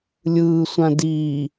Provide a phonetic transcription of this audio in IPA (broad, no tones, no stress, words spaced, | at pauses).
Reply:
lʲɯːsʷã diː